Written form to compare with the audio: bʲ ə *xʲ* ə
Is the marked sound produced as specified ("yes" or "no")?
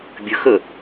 no